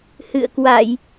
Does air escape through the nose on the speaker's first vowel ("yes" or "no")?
no